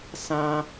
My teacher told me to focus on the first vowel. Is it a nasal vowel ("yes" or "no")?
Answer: yes